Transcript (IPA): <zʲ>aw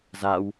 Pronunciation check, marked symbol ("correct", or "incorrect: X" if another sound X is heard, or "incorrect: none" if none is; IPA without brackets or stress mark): incorrect: z